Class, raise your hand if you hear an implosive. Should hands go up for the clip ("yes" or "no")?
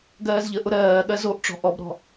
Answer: yes